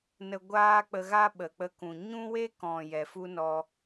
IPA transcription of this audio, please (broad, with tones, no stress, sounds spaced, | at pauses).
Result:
n ə˧ ɡʷ aː˦ k͡p ə˧ ɣ a˦ ɓ ə˨ k͡p ə˧ k ũ˨ ɲ ũ˦ w e˦ k ɔ̃˨ j ɛ˨ f u˦ n ɔ˧